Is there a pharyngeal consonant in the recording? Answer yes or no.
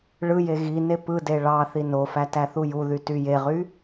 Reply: no